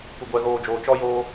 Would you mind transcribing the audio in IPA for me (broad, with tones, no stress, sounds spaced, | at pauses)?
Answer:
kʷ ɪ˨ ɡʷ ɛ˨ ɣ oː˨ d͡ʒ oː˨ t͡ʃ ɔ˦ j oː˦